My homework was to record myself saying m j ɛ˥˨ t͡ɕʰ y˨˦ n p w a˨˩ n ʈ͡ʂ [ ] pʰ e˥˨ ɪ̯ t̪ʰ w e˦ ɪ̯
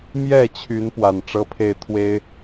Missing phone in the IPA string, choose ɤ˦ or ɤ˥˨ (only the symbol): ɤ˦